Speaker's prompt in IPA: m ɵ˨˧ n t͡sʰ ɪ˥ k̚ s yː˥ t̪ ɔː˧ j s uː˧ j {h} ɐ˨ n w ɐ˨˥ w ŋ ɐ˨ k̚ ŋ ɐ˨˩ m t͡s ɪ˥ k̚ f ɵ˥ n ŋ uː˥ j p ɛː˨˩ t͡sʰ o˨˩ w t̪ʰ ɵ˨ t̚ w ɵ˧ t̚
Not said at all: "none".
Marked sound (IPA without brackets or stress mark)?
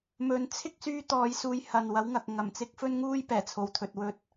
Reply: h